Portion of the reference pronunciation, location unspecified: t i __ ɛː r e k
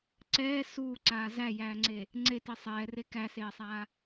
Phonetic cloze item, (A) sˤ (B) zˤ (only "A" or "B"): A